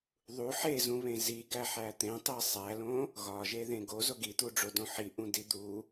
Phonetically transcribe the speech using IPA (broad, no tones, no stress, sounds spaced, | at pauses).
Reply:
ðˤ u ħ e z ũ β ẽ z i ɡ æ ħ æ t̪ ẽ tˤ e sˤ æ l õ | ɣ ɒ ʒ e ð ẽ ɡ o z o ɡ i t̪ u ɖ͡ʐ o d õ ħ i ʔ ũ d i d̪ u